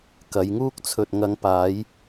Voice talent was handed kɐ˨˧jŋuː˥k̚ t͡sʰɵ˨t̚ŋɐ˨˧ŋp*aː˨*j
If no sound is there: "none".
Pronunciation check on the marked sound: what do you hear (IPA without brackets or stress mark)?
aː˨˧